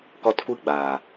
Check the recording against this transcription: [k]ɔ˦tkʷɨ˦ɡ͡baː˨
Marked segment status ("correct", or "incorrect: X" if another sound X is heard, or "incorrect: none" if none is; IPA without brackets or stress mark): correct